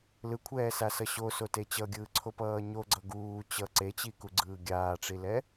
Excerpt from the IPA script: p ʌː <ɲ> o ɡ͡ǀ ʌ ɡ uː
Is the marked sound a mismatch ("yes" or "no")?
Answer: no